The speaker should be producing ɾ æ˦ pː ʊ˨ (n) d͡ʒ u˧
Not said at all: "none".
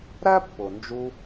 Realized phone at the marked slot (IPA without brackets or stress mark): n